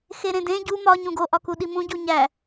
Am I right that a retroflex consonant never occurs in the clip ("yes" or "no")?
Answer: yes